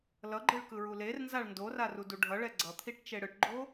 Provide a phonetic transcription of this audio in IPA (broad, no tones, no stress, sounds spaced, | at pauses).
l ʌ ɡ͡ǃ ɯ ɭ k ɯ ɹ u l e r n z a ɭ n d o r a r u d u ɖʱ ʌ ɭ ɛ ɡ͡ǀ ʌ t̪ʰ i ʈ t͡ʃ e ɽ ɯ ʈ ɡ͡ǃ o